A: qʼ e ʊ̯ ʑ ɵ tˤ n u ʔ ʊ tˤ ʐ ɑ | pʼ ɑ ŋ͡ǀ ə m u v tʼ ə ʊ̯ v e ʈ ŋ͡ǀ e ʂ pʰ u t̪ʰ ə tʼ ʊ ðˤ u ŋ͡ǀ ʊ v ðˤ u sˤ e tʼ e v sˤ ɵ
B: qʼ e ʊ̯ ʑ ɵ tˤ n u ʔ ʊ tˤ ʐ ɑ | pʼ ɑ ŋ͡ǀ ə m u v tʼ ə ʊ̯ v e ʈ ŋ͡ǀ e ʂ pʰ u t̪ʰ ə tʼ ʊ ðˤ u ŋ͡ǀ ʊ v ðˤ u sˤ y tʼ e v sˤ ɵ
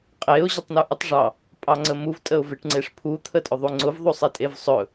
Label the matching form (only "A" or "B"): A